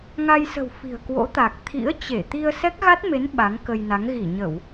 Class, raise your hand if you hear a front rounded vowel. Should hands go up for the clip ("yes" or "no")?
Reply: no